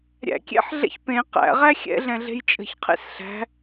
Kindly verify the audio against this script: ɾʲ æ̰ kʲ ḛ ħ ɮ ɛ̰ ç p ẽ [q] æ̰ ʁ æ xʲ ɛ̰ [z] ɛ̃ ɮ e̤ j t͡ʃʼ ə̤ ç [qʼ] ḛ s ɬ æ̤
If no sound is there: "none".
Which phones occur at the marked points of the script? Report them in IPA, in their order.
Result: q, ɮ, qʰ

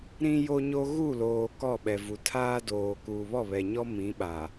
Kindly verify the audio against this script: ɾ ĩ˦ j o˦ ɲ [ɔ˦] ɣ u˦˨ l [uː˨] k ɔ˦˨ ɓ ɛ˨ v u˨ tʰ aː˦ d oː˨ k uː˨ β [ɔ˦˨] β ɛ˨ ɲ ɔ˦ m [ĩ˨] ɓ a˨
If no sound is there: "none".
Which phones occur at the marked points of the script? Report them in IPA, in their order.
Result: o˦, oː˨, ɔ˦˨, ĩ˨˦

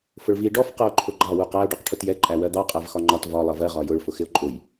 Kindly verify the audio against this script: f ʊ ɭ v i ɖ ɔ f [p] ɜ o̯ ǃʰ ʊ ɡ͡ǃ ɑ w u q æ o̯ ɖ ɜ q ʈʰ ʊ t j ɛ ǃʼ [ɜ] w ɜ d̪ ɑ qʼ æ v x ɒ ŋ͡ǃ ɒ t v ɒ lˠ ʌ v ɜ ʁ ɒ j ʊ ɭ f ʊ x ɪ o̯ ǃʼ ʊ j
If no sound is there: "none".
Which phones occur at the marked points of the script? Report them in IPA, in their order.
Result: q, æ

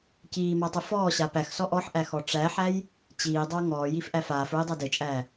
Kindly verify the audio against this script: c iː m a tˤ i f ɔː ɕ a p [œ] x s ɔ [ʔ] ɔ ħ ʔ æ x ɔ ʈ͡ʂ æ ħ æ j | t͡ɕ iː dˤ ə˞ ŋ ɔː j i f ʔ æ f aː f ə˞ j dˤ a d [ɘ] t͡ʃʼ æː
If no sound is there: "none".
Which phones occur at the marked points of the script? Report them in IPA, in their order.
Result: æ, ʔ, ɘ

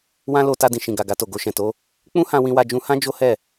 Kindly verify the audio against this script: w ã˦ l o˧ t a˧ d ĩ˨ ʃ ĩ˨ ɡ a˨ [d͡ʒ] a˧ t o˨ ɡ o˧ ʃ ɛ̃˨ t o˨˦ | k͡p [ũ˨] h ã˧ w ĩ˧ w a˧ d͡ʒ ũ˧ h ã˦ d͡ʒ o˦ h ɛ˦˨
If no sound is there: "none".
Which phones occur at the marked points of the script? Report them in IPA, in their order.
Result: ɡ, ũ˦

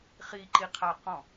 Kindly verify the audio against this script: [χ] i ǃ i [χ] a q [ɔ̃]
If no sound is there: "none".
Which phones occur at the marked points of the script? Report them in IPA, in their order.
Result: χ, qʰ, ɔ̃

